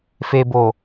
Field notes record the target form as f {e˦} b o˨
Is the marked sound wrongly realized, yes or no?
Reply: yes